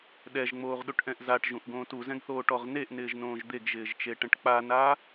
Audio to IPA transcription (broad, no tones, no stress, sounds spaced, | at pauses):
ɗ ɛ ʒ ŋ͡m oː ʁ ɗ u ʈ ʔ ɛ̃ ʔ z a ʈ ʒ ũ ʔ ɡ õː t u z ɛ̃ ɡ θ oː ʈ ɔ ʁ n e ʔ n ɪː ʒ n õː ʒ d̪ e ɡ ʒ ɪː ʒ t͡ʃ e ʈ ɛ̃ ʈ k͡p a n a